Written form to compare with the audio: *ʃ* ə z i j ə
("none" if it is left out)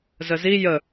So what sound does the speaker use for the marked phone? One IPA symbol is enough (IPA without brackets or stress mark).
z